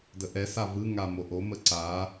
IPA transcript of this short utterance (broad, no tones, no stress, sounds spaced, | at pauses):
d ə ʔ ɛ s a v ɯ ŋ a m o ʔ o m ə ǀ a